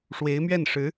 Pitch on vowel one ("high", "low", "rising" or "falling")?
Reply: rising